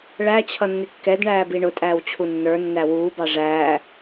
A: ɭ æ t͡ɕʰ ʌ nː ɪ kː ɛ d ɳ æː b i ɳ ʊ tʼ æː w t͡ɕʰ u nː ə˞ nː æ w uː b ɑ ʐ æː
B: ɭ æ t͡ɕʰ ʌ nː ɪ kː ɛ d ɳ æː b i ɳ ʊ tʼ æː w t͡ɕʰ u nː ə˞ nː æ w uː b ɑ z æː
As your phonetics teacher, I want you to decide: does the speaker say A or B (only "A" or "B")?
A